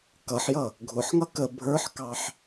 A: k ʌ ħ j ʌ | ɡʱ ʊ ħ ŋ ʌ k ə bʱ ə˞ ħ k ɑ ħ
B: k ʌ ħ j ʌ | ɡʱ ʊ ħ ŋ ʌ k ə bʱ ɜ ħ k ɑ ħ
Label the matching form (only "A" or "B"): A